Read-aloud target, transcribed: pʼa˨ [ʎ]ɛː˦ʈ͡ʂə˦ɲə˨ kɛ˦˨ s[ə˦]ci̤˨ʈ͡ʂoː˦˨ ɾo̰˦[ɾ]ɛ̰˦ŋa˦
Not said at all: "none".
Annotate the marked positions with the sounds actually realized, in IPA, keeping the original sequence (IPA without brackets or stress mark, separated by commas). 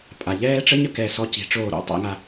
ʎ, ɔ˦, tˤ